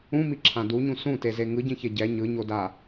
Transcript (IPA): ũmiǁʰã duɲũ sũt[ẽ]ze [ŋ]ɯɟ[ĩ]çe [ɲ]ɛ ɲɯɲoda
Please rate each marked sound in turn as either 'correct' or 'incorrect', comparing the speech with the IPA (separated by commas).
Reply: incorrect, correct, correct, incorrect